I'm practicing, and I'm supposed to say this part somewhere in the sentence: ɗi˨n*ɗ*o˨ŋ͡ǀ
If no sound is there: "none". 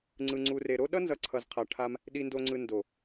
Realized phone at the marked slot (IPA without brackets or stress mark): d